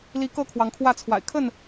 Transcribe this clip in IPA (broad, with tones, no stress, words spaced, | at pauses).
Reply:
li˨˦ kɤ˥˨kʰwɑ˨˦ŋkʰwä˥˨t͡sʰwa̰˨˩ɪ̯ kʰə˥˨n